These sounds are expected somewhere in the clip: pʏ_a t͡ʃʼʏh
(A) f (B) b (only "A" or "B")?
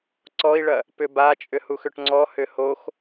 B